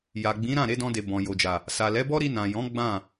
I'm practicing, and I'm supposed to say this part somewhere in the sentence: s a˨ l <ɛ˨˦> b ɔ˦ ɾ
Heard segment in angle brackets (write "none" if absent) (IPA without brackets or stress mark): ɛ˨˦